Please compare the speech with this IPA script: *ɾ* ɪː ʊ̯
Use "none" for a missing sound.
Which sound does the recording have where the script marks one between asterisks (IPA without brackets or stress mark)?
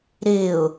ɾ